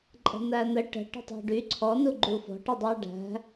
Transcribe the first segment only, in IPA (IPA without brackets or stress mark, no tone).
ǃʼ